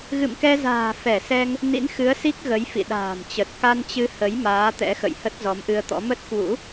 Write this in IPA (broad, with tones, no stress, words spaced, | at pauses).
ɣɨ̰˧˨mkɛ˧za̤ː˨˩ fɛ˧˩sɛ˧ŋ | nḭ˧˥nxɨ˨˦ə̯si˦˥k̚ ɣə˨˦j fḭ˧˨ɗa̤ː˨˩mt͡ɕə˨˩t̚ ka˧nt͡ɕɨ˧hə˨˦j maː˨˦t̪ɛ̰˧˥xə̰˧˨j hə˦˥t̚zɔ˨˦mʔɨ˧ə̯t̪ɔ̰˧˥ mə˦˥t̚kwṵ˧˥